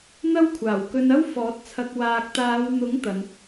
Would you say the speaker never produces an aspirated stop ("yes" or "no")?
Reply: no